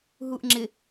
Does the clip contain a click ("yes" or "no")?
yes